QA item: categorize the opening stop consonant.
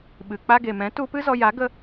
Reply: implosive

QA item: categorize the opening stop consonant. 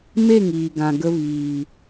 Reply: plain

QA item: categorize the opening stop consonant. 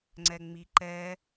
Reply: click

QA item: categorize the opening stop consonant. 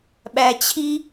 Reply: implosive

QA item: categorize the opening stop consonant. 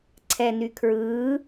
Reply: click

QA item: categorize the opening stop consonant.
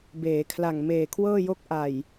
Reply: plain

